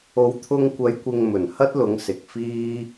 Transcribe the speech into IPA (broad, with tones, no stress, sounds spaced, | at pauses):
o˨˧ w t̪ʰ ʊ˧ ŋ kʷ ɐ˨˧ j kʷ ɪ˨ ŋ m ɵ˨˩ n h ɐ˥ t̚ l ʊ˨˧ ŋ s ɪ˨ k̚ f iː˥